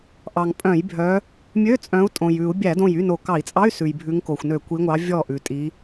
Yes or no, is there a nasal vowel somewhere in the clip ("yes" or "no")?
yes